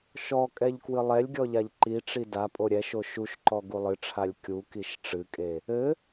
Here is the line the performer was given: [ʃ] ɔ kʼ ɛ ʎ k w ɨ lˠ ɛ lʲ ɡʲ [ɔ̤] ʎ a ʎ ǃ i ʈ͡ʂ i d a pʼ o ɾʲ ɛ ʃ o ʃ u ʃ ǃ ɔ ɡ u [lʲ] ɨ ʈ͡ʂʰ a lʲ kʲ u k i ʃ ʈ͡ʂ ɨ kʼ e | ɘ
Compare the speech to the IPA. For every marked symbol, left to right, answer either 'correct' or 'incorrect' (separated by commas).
correct, incorrect, incorrect